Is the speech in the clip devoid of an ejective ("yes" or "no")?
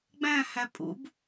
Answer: no